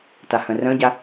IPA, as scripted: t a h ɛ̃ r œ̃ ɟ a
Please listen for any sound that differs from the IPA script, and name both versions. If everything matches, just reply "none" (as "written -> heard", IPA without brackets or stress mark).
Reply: ɛ̃ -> œ̃